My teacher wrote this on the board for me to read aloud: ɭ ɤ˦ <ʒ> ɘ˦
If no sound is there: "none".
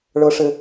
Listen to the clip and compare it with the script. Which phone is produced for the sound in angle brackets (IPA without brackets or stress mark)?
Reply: ʂ